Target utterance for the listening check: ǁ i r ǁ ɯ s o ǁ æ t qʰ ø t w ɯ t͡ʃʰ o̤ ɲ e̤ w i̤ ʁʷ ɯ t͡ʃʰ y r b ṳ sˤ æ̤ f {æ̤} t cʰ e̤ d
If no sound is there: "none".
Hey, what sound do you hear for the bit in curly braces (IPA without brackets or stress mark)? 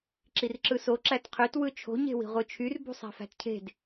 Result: æ̤